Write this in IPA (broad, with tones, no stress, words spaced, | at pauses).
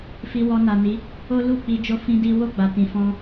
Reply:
fi˧ wɔ˧na˨ni˨˦ | o˦ lu˦˨ k͡pi˧d͡ʒo˦ fĩ˦di˦ wo˦˨ɡ͡ba˨tĩ˨fɔ̃˧